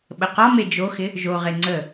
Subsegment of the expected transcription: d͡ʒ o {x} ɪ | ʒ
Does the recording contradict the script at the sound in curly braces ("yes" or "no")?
no